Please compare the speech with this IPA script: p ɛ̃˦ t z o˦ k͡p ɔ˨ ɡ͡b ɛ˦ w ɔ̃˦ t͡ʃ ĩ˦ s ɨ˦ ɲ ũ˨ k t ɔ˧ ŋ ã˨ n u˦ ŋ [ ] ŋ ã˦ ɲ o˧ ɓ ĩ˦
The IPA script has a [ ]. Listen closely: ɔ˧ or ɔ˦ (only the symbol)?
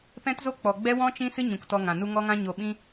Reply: ɔ˦